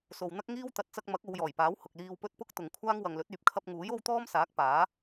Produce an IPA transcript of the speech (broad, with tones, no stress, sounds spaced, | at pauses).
s o˨ w n̪ ɐ˥ k̚ ŋ iː˥ w t̪ ɐ˨ t̚ t͡s ɐ˧ k̚ m ɐ˨˥ k̚ o˨˧ w j ɔː˨˩ j p aː˨˥ w h ʊ˨ k̚ l iː˧ w p ɵ˥ t̚ p ʊ˥ k̚ t̪ ʊ˨ ŋ kʷʰ aː˥ ŋ w ɐ˨ ŋ l ɵ˨˥ t̚ yː˨ p̚ kʰ ɐ˧ p̚ ŋ uː˨˥ j o˥ w t̪ ɔː˥ m s aː˨˥ k̚ p aː˨˥